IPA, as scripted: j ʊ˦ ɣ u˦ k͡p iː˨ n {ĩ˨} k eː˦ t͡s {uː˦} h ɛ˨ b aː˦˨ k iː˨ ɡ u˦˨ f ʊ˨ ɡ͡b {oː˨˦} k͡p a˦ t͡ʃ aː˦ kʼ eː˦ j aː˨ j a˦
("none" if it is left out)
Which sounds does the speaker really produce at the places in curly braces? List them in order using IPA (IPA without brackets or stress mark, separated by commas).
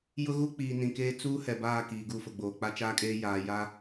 ĩ˨, uː˦, oː˨